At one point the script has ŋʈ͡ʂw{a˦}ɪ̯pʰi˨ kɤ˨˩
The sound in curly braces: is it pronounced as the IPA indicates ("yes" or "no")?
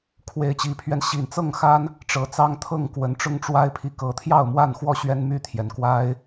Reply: yes